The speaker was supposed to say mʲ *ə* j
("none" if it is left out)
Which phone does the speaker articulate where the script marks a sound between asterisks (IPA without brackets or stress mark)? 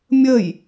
ə